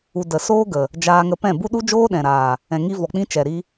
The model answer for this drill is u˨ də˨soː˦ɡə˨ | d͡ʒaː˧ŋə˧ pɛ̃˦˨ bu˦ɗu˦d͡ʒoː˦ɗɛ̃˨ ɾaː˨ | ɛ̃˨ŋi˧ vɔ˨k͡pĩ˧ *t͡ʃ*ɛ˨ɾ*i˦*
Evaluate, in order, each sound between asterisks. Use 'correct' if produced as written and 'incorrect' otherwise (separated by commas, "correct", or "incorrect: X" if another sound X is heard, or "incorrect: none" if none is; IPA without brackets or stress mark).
correct, correct